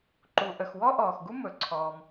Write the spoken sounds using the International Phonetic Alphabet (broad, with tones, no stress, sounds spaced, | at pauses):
ǃ u˩ ʔ ə˩ x w ɔ˥ ʔ ɔː˩ x ɡ u˥ m ɵ˩ ǀʰ ɔː˩ m